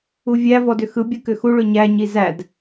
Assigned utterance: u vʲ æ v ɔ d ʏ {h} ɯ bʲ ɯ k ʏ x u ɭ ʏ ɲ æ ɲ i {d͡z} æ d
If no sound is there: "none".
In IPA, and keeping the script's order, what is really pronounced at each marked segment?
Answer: x, z

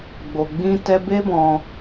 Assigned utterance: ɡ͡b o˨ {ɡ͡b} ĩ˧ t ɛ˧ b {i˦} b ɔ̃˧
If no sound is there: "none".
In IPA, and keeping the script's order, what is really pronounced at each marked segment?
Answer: ɡ͡b, e˦

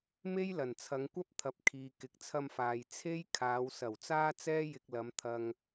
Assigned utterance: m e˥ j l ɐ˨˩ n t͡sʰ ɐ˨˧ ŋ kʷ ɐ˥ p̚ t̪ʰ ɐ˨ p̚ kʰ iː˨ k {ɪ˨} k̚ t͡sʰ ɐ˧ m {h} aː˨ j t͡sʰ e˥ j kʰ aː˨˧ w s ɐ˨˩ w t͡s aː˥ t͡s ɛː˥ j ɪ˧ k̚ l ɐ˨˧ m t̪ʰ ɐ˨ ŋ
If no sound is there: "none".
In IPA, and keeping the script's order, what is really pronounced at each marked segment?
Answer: ɪ˨˥, f

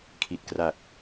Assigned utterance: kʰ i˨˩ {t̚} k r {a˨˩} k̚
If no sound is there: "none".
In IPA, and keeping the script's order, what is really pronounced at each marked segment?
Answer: t̚, a˨˩

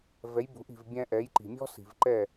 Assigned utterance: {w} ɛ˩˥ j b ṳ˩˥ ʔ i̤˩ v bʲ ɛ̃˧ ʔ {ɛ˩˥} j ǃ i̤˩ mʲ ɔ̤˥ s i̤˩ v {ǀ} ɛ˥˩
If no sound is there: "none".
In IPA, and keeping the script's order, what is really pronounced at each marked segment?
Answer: v, ɛ˩˥, ǃ

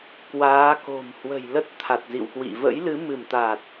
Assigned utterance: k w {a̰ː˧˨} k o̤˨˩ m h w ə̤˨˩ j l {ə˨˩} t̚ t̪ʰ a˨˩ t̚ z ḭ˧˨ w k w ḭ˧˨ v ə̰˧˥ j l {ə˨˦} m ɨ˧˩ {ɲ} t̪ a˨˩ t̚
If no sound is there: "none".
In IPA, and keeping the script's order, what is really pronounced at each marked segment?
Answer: aː˨˦, ə˦˥, ɨ˨˦, m

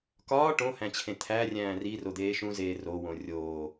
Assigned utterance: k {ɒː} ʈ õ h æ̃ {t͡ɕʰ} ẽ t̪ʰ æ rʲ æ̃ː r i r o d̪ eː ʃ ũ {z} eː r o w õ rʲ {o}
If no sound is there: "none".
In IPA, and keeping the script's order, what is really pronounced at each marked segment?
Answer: ɒː, t͡ɕʰ, z, oː

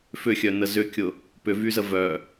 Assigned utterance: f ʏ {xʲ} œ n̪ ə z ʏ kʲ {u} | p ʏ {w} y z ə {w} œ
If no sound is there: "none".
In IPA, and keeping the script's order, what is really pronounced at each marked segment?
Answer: xʲ, ʊ, v, v

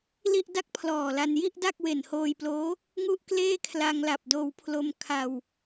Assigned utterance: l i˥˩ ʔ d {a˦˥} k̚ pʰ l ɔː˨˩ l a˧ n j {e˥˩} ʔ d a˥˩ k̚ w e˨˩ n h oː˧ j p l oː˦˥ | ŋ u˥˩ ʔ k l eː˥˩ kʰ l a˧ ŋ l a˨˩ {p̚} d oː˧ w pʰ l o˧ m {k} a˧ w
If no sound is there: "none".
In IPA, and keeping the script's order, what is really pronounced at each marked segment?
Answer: a˥˩, i˥˩, p̚, kʰ

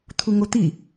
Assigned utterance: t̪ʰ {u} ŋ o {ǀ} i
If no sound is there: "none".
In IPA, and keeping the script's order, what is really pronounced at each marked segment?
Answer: u, t̪

